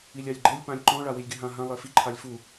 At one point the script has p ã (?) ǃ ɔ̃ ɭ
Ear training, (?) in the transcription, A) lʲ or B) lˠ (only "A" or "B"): A